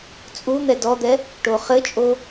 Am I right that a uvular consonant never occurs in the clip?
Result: no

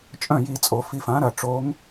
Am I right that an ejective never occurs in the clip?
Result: no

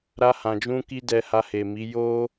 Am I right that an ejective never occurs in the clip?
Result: yes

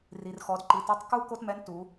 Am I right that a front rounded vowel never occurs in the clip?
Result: yes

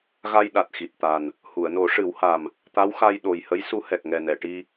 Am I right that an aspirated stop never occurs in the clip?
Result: yes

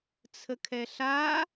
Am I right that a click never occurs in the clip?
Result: yes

